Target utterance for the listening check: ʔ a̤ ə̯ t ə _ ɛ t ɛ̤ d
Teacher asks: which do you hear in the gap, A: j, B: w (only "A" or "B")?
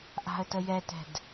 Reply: A